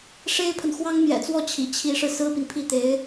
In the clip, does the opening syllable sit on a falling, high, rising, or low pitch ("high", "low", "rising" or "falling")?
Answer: high